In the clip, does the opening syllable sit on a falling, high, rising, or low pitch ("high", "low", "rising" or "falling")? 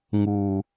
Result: low